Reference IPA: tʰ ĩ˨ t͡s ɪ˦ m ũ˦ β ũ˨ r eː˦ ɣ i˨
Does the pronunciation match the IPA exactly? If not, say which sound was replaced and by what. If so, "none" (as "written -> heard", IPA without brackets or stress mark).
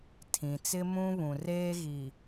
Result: none